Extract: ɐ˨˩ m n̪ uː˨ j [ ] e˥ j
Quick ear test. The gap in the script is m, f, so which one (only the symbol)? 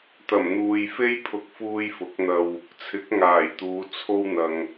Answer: f